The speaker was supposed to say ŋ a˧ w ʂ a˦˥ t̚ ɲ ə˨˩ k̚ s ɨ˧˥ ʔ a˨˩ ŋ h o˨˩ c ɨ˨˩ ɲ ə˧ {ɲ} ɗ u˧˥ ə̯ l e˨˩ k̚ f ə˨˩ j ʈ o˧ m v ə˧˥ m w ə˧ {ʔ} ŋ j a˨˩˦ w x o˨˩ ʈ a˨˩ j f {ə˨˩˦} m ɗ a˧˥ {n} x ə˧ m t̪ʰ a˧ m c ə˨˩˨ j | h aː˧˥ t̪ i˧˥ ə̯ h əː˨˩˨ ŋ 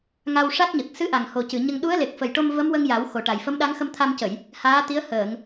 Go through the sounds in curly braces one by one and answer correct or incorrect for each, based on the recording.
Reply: incorrect: ŋ, incorrect: none, incorrect: ə˧˥, incorrect: ŋ

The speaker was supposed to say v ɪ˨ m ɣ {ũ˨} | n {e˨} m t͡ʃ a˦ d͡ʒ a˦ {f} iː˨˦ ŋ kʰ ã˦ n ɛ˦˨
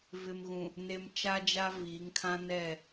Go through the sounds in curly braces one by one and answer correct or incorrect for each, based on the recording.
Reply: correct, correct, incorrect: v

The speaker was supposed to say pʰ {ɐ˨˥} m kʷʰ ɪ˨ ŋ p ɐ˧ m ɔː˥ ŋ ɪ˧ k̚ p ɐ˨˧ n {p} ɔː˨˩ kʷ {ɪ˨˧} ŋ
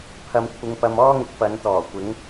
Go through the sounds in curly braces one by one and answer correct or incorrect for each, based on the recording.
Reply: incorrect: ɐ˨, incorrect: t̪, correct

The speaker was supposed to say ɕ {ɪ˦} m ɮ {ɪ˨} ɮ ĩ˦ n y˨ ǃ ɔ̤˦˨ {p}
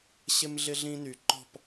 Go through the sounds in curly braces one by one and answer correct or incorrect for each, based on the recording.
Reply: correct, incorrect: ɪ˦, correct

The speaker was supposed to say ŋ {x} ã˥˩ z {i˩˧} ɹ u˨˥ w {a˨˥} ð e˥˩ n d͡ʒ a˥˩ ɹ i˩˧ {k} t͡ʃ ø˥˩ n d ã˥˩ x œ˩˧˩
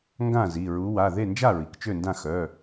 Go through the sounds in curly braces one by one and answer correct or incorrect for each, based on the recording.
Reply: incorrect: ɡ, incorrect: i˩˧˩, incorrect: a˩˧˩, correct

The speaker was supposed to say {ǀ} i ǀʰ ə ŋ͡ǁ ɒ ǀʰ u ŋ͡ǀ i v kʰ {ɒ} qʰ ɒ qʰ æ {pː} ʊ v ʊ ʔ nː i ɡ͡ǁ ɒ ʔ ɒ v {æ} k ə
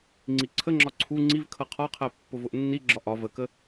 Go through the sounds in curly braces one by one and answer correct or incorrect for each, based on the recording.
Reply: incorrect: ŋ͡ǀ, incorrect: ʌ, correct, incorrect: ə

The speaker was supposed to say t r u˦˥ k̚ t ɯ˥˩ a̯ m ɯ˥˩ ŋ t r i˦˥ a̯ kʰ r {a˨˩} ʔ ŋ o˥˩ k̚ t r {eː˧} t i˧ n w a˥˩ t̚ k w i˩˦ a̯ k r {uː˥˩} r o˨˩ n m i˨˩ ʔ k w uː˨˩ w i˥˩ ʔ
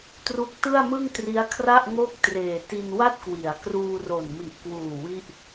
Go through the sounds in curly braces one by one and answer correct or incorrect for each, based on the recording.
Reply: incorrect: a˥˩, incorrect: eː˨˩, incorrect: uː˧

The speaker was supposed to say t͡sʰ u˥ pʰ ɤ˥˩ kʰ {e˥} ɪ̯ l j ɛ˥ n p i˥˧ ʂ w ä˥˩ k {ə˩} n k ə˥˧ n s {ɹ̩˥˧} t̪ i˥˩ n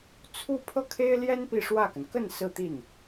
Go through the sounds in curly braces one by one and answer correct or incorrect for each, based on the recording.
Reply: correct, correct, correct

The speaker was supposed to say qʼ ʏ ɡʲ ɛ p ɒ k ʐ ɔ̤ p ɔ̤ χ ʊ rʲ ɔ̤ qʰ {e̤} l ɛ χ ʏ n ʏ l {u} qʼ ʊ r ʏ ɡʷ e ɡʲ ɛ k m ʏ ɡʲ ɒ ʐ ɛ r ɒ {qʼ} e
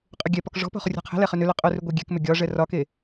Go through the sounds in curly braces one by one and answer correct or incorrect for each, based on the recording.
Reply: correct, incorrect: ʏ, incorrect: k

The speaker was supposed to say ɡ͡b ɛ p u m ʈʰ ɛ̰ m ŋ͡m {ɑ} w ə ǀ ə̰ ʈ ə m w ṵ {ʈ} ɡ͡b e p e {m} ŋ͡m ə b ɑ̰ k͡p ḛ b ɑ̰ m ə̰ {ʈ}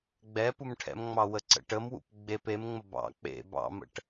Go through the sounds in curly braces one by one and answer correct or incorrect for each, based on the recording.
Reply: correct, incorrect: p, correct, correct

